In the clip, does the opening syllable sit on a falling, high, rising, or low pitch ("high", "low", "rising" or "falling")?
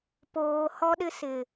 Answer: low